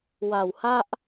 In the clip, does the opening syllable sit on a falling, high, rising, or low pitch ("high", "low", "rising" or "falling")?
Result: low